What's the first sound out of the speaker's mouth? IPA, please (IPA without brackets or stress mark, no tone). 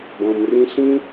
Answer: b